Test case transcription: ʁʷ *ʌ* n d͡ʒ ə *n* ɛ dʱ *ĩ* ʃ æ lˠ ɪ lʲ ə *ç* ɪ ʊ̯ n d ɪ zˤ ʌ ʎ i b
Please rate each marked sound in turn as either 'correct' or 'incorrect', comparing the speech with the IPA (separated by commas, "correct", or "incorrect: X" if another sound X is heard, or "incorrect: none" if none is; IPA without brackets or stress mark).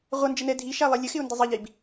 correct, correct, incorrect: i, incorrect: x